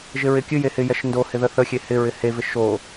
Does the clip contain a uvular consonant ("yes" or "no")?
no